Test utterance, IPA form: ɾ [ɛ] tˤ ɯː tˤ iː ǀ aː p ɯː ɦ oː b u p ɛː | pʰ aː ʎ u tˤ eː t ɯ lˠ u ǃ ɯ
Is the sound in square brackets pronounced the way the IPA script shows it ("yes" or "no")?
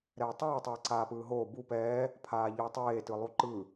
no